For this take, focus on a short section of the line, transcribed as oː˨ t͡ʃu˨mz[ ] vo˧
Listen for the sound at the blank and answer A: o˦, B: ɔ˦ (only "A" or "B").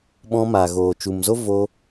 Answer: A